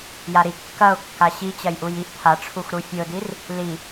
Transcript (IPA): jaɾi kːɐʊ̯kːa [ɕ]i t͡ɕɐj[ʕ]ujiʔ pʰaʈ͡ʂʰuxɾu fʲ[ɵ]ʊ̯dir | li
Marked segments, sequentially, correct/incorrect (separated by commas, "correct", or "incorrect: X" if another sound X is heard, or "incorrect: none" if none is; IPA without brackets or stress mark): correct, incorrect: ʔ, correct